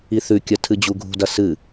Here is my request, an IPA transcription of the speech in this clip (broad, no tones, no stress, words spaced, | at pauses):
iθʉkʲɐ tʰɨd͡ʑuɡʱṳdɐ sɨ